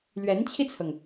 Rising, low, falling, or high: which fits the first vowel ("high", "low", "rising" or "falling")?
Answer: rising